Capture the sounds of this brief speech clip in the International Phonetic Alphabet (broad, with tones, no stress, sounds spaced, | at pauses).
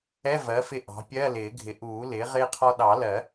ɛ˧˥˧ v ɜ˩˥ f ɪ˧ ʔ ɑ̤˩˥ pʲ ɜ˧˥˧ l ɪː˨˩˦ ɡʱ ɪ˩˥ ʔ uː˨˩˦ l ɪː˩˥ ʁ ɪː˧ qʰ ɔ˧ ɗ ɑ˨˩˦ l ɜ˨˩˦